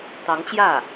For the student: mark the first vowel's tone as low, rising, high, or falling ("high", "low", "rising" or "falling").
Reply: rising